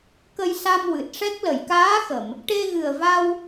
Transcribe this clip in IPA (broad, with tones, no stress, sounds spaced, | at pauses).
k ə˧ j s a˧ m w ɨ˨˩ t̚ ʂ ɛ˦˥ k̚ l ə˨˩˨ j k aː˧˥ x ə˨˩˨ m | ʈ e˧ ɣ ɨ˨˩ ə̯ v a˧ w